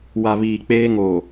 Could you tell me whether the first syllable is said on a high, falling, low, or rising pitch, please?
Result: low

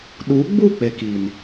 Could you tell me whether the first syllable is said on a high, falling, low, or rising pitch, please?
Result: rising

